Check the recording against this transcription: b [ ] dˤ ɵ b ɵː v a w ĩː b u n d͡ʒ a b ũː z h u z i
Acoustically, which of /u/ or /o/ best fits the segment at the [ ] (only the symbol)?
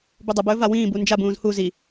u